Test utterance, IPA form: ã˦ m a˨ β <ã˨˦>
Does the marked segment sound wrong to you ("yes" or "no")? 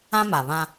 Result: yes